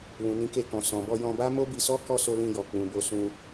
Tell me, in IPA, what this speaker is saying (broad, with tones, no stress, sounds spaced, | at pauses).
l ũ˨ n ĩ˨˦ k e˧ k ɔ̃˨ s ɔ̃˨ b ɔ˧ j ɔ̃˧ b a˦ m o˦ b i˧ s ɔ˦ k ɔ˦˨ s o˧ l ĩ˧ j ɔ˨ k͡p ũ˨ b o˧ s ũ˧